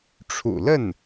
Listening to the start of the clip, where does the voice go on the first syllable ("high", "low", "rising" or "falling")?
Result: low